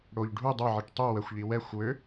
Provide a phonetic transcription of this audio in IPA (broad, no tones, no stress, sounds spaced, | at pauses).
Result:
ɽ o ʎ ɖʱ u dˤ ə˞ ʕ i ʈ tˤ u w ə xʷ ʎ i w ɛ xʷ w ø